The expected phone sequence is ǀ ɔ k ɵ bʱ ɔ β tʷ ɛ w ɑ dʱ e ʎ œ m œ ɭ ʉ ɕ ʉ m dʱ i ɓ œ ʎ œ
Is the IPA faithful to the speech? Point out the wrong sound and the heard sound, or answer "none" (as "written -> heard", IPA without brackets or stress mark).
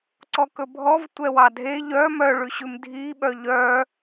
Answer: β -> v